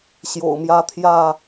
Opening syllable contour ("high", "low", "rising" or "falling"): low